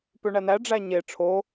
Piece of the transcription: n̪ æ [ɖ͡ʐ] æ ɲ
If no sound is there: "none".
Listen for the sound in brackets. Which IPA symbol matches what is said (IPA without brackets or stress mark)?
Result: ɖ͡ʐ